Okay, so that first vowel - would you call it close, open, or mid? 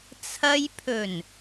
open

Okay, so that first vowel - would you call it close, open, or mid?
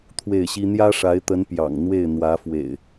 mid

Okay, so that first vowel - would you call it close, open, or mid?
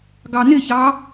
open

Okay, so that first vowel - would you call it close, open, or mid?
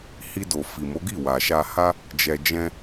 close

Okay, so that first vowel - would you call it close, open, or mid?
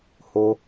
mid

